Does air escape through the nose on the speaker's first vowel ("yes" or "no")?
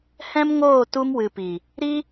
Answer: yes